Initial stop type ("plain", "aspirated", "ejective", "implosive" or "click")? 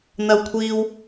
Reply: aspirated